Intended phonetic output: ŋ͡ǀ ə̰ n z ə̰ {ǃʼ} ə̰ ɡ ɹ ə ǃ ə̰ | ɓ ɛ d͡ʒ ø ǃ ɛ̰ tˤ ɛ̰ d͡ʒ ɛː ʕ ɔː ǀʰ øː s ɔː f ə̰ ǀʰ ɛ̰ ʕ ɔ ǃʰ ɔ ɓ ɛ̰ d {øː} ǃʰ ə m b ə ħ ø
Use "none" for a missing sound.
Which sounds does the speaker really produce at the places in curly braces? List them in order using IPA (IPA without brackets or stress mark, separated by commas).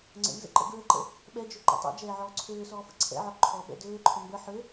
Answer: ǃ, øː